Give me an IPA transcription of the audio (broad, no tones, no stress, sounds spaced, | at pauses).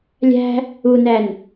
lʲ æ̤ | u n æ n